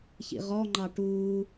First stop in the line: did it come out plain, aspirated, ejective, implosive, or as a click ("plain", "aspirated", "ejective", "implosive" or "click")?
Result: click